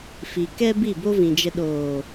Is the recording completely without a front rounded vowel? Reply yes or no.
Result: yes